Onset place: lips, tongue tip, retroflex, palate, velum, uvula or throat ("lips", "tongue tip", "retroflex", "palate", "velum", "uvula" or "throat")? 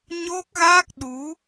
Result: palate